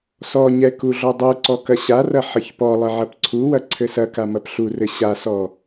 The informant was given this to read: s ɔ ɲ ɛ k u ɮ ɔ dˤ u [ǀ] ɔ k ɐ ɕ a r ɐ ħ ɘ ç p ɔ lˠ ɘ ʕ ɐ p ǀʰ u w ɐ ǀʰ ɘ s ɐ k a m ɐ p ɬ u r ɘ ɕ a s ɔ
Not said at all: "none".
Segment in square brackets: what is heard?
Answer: ǀ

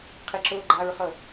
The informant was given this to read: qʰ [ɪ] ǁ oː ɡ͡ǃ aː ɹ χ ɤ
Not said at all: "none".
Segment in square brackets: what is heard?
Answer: ɪ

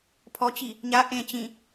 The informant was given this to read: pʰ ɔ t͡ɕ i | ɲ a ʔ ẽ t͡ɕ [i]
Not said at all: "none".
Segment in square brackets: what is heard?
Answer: ĩ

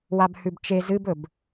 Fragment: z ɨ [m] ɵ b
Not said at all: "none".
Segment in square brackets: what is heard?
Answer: b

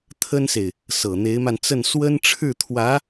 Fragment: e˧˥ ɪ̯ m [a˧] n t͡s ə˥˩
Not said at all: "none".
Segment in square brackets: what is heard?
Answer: a˧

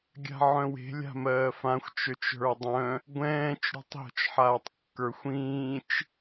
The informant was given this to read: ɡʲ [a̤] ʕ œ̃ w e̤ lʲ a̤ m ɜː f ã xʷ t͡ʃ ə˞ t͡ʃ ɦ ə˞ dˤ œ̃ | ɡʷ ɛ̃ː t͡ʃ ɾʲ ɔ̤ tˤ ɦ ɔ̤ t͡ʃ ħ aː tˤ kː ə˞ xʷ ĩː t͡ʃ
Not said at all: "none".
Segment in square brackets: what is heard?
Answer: a̤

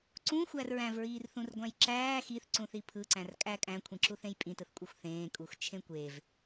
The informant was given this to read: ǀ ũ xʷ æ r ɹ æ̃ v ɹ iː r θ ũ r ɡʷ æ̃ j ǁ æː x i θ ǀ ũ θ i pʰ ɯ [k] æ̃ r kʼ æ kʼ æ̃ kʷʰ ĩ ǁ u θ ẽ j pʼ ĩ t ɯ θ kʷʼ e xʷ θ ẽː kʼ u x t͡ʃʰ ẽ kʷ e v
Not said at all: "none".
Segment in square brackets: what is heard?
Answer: ǀ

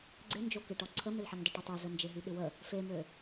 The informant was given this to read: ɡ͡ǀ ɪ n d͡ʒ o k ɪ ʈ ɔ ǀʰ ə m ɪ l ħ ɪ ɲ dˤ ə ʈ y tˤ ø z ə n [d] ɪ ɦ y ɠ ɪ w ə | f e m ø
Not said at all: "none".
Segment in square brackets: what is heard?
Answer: d͡ʒ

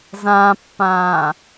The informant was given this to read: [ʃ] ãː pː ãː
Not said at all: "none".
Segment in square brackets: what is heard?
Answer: z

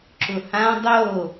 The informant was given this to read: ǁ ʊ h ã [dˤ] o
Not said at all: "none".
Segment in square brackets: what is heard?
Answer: dˤ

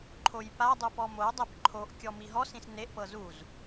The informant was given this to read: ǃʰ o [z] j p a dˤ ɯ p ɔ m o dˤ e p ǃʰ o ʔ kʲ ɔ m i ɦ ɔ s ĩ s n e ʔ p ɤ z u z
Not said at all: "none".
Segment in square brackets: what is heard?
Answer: none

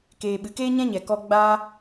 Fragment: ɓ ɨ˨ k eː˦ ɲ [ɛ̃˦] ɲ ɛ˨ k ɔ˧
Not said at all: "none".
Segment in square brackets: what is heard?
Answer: ɛ̃˦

